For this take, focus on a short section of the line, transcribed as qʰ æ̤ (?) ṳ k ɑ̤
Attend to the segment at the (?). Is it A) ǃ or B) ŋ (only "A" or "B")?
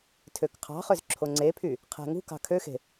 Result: B